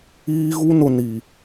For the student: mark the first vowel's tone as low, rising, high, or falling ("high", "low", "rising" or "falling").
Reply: high